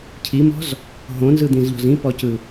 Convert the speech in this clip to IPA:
cʰ i m ɔ̤ z | ɦ õ n z ɯ d̪ ĩ z ʎ ɔ̤ z ĩ p ɔ c ɯ

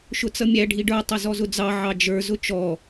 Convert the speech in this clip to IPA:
ʃ ʊ t͡s ʌ mʲ æ ɖʱ i ɖ ə˞ tˤ ʊ z ɔ z ʊ d͡z ɑ ʕ ɑ d͡ʒ ə˞ z ʊ t͡ʃ ɔ

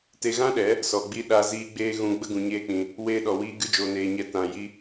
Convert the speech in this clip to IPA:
t e˧ ɣ ã˦ ɗ ɛ˨˦ | s ɔ˨ ɡ͡b i˧ ɗ a˧ z iː˧ ɡ͡b eː˧ ɣ ũ˧ ɡ͡b ə˦ ɡ ũ˧ ɲ eː˦ k͡p ĩ˧ | w eː˧ ɗ ɔ˨ w iː˧ ɡ ɨ˧ d͡ʒ oː˨ n eː˨ ɲ ɛ˨˦ t ã˨ j i˧

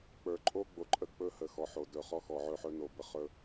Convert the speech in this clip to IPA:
k͡p ə˞˨ ǃʼ o˦ ɡ͡b o˨ ǃʼ ə˦˨ k͡p ɵ˦ h ə˨ x ɔ˨ ħ o˨ d ɵ˨ χ ɔ˦ x ɔ˨ ʕ ɵ˦˨ ħ ɵ˦ n o˨ b ə˨ χ ɵ˦

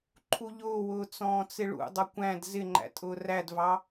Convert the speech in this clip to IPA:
ǃʰ u ʎ ʊː w ʊː t͡s ɔ̃ː t͡s ɪ ɭ ṵ dˤ ʌ kʷ æ̃ d z ɪ ŋ͡ǃ æ̰ tʼ ʊː r æ d v ɑ

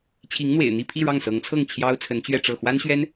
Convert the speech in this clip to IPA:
t͡ɕʰ i˧˥ ŋ n̪ w ḛ˨˩ ɪ̯ n̪ i˥˧ pʰ i˥˧ ɻ ɑ˥˩ ŋ s ɤ˧˥ ŋ t͡sʰ ɤ˥˩ ŋ t͡ɕʰ j ɑ˥ ʊ̯ t͡sʰ ə˧˥ n t͡ɕ ɥ ɛ˥˧ ʈ͡ʂ ɤ˥˩ x w a˥ n ɕ ɥ ɛ˥ n

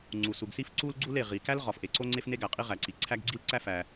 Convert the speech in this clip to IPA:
ŋ͡ǀ u˩ s u˩ ɡ s i˥ f ǀ u˥ l ɡ͡ǀ u˥ l e˩ ʁ i˩ k æ˥ l ʁ ɒ˩ f ʔ e˩ ǀ o˥ ŋ͡ǀ e˥ f n e˥ ɡ æ˩ qʼ i˥ ʁ æ˩ ǀ i˩ ǀʰ æ˥ ɡ ɡ͡ǀ i˥ l ǀ æ˥ f æ˩

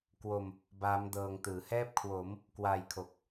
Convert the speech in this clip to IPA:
k w o˧ m | b aː˦˥ m d ɤː˧ ŋ t ɯː˩˦ h ɛː˥˩ p̚ kʰ w o˩˦ m | k w aː˧ j kʰ o˨˩ k̚

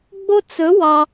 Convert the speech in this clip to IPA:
ɡ͡b o˥ t͡s ɵ˧˥ w ɑ˧

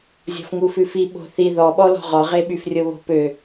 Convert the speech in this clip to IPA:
zʲ ɔ̤ f ŋ u f ʉ f i ɓ o̤ θ i ð ɔ ɓ ɔ l ɔ̤ ʁ ɔ ʁ e ɓ y f rʲ o β o̤ p ø

